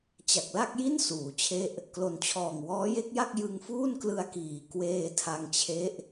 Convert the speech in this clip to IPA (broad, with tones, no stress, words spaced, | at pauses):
t͡ɕa˨˩k̚la˥˩k̚ji˥˩n suː˩˦t͡ɕʰe˥˩ʔ | klo˩˦nt͡ɕʰɔː˨˩ŋ wɔː˦˥je˦˥k̚ja˥˩k̚ jɯ˧ŋfuː˥˩n klɯ˧a̯kiː˨˩ kweː˧tʰa˧ŋt͡ɕʰe˦˥ʔ